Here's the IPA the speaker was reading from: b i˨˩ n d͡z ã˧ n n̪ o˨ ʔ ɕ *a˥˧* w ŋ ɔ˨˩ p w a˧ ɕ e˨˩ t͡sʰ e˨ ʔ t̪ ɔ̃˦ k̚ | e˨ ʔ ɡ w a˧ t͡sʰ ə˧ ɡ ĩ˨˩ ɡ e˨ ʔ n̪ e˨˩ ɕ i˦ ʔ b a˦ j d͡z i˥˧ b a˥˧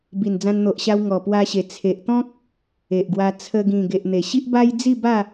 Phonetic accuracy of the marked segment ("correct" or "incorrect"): incorrect